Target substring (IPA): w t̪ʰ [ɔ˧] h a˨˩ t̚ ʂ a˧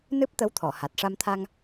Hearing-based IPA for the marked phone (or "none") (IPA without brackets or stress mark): ɔ˨˩˨